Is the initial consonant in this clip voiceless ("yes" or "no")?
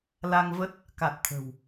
no